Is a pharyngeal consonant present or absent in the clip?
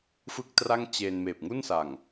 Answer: absent